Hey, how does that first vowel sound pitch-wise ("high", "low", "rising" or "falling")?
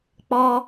high